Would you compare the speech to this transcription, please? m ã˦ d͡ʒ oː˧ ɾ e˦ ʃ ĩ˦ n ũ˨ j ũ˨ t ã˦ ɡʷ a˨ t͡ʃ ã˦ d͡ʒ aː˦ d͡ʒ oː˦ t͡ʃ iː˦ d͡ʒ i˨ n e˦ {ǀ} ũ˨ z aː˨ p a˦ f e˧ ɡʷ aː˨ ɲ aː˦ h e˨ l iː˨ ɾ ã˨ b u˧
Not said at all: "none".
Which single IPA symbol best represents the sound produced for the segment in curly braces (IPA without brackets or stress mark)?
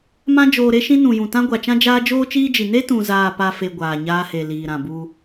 t